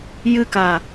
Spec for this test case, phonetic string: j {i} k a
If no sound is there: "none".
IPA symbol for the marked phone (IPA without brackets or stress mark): ɨ